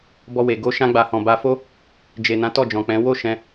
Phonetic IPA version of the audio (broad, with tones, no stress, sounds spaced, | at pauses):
b ɔ˧ w e˨ ɡ o˧ ʃ ã˧ ɡ͡b a˨ h ɔ̃˨ b a˧ f o˦ | d͡ʒ e˨ n ã˨˦ t ɔ˦˨ d͡ʒ ɔ̃˨ k͡p ɛ̃˨˦ w o˦˨ ʃ ɛ̃˧